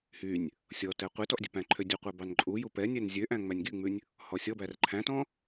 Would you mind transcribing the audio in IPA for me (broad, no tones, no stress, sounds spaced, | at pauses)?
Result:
h y nʲ | sʲ ɔ t ɛ qʷ e t ɔ ʔ dʲ ɛ p æ̃ ǃʰ ø dʲ u qʷ æ b ɑ n ǃʼ u j u p ɛ nʲ ɛ n zʲ ø ʔ æ̃ ŋ͡m æ nʲ ɡ y ŋ͡m ʉ nʲ | h ɔ sʲ ɔ b æ r ǃʰ æ̃ t ɔ̃